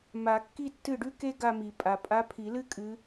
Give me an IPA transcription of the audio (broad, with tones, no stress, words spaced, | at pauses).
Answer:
ma˨˩˦kːi˥˧ tːɨ˥˩ɖʉ˥ke˥ ɡa˥˧mi˨˩˦pʼa˨ pʼa˧˥pʰi˨˩˦lɨ˥ kʼɨ˧˥